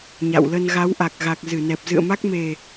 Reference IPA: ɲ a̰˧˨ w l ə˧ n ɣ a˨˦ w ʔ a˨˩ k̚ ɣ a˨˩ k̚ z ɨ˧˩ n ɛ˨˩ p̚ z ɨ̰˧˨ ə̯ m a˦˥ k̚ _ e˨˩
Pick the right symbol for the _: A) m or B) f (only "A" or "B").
A